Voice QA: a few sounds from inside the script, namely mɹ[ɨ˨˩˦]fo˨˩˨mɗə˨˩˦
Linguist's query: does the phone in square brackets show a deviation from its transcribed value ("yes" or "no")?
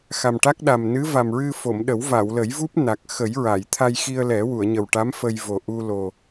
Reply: yes